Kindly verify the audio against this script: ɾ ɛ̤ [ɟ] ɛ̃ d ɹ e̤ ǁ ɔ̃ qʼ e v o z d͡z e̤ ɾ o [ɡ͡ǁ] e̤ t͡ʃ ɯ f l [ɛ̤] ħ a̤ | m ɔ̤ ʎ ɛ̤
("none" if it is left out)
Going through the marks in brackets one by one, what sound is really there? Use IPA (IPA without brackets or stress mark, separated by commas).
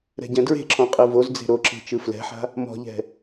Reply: ɟ, ǁ, ɛ̤